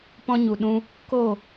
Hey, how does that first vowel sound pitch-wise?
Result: high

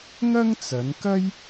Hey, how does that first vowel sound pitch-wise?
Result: high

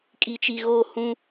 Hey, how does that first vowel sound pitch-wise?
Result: low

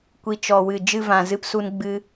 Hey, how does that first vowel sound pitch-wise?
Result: low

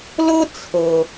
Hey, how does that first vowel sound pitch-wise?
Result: high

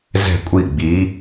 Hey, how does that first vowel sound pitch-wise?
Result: falling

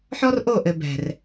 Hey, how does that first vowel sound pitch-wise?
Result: high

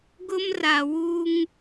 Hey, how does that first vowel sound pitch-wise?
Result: high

